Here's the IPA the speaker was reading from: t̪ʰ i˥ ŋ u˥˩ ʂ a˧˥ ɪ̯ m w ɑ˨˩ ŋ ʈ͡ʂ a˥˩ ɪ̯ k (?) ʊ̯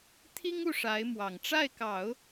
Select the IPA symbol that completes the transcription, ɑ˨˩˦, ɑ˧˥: ɑ˨˩˦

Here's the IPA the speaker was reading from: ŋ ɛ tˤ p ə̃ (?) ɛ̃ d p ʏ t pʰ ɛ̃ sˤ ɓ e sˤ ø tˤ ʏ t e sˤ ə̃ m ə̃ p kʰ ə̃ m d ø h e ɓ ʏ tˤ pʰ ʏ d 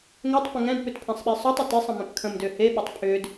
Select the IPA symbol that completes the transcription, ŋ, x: ŋ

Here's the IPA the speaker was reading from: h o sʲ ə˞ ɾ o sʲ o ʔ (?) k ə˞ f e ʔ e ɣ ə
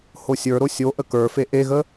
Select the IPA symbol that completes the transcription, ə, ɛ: ə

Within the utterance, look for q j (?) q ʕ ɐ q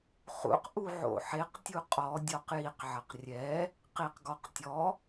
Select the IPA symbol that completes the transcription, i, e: i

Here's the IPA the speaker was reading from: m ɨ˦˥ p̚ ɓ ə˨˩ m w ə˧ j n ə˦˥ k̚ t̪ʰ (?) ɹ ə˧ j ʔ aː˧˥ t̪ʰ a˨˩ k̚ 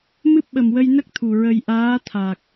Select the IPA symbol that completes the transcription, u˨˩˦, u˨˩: u˨˩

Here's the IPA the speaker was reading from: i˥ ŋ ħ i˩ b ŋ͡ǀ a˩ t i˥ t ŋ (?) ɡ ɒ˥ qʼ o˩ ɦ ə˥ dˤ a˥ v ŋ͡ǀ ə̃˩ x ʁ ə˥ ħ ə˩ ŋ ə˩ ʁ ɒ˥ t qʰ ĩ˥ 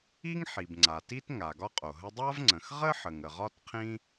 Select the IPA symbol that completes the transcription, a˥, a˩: a˩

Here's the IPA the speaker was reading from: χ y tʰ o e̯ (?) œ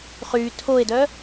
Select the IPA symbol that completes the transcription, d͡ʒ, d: d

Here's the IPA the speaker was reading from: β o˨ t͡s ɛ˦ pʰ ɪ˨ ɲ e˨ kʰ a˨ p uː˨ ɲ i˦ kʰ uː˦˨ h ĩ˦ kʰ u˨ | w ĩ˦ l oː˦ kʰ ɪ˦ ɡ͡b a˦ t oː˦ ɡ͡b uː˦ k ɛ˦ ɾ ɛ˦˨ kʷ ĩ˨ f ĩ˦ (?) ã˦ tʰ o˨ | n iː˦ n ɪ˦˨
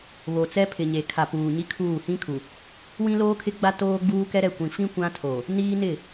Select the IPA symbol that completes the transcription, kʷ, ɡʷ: kʷ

